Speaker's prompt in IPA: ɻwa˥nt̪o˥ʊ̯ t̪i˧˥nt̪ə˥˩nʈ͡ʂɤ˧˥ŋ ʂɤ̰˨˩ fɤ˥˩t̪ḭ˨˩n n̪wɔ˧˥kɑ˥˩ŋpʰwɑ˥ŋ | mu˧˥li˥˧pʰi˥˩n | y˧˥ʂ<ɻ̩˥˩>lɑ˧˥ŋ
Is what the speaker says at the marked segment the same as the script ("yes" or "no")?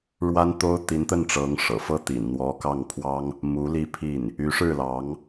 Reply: yes